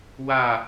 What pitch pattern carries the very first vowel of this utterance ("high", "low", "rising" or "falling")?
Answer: falling